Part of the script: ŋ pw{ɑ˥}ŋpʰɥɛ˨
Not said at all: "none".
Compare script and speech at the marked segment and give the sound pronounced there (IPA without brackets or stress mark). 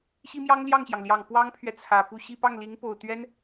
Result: ɑ˥